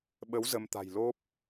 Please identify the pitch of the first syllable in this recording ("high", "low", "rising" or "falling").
rising